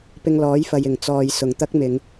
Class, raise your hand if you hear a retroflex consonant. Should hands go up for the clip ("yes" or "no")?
no